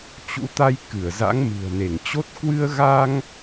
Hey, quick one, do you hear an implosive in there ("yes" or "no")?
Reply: no